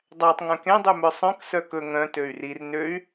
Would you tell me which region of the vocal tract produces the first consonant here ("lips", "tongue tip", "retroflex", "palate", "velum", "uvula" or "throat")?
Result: tongue tip